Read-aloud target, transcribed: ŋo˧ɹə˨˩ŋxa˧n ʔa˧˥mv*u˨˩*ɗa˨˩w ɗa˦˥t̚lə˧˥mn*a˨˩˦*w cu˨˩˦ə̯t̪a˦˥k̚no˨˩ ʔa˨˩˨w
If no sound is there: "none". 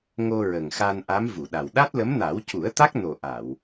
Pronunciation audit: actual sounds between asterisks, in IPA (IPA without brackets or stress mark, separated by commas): u˨˩˨, a˨˩˦